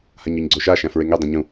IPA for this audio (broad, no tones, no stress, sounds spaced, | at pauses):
h a ɲ ɔ ɲ ɡ͡ǀ o ʃ a ʃ æ̃ f ɹ e ŋ e dˤ ẽ ɲ ũ